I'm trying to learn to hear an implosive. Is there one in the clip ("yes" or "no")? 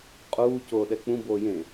yes